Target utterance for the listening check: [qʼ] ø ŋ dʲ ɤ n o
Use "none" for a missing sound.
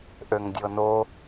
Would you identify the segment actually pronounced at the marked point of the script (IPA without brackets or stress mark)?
ʔ